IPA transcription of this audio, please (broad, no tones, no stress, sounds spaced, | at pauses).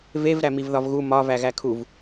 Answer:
v e v ɾ æ m i v ð ɒ v ɣ u m ɒ v æ ɣ æ kʰ u v